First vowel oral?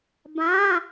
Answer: no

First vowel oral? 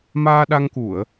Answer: yes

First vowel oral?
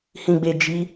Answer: no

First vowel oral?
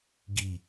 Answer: yes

